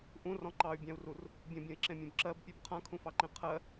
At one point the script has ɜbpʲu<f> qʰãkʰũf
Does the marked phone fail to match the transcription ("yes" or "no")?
yes